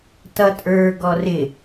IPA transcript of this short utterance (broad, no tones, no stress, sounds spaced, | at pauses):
t ʌ tʼ ə˞ ɡ ɔ r ɪ